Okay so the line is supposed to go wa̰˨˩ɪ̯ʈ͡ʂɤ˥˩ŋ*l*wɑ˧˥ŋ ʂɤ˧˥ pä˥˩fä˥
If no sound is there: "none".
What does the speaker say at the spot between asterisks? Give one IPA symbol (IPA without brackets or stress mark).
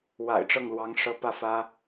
l